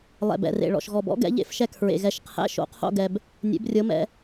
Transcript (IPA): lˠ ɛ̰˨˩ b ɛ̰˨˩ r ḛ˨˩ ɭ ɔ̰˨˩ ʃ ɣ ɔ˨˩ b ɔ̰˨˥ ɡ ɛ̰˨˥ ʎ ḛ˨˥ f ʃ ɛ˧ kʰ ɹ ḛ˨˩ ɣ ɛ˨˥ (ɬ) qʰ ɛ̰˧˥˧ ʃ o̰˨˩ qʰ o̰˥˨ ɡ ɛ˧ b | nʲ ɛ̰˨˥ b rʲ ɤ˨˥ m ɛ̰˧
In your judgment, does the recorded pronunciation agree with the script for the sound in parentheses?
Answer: no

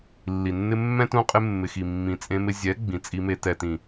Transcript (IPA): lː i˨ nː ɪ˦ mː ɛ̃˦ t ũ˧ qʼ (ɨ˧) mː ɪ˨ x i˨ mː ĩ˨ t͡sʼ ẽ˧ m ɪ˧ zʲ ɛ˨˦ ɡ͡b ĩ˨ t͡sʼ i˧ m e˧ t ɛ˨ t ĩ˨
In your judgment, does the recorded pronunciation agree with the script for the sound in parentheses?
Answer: no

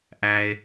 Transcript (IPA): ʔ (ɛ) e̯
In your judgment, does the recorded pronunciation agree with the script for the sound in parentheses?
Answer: no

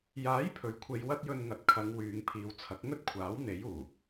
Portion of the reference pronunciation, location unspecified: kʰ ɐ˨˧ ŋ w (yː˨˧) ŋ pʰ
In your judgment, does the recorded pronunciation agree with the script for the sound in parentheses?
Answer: yes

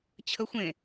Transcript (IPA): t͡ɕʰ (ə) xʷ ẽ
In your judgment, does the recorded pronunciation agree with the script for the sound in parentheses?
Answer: yes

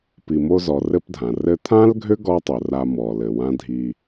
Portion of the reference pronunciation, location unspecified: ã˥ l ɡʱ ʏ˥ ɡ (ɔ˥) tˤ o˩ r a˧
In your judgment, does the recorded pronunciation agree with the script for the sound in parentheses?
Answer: yes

